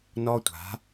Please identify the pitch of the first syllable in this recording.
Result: high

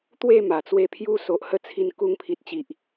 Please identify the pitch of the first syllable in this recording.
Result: falling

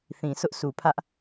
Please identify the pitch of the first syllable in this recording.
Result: low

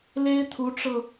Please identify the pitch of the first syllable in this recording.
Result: high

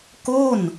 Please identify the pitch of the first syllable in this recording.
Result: falling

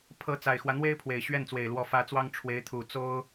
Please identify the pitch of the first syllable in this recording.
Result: rising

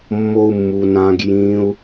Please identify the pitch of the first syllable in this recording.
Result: high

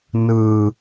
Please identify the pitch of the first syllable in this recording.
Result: high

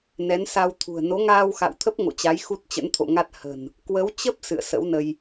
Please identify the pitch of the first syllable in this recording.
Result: rising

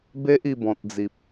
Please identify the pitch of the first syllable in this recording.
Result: high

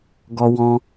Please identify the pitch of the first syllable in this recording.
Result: high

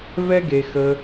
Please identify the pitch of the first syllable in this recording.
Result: high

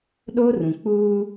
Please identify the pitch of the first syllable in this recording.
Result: high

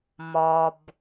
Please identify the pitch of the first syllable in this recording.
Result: low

